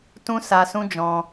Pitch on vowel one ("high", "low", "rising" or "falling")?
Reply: high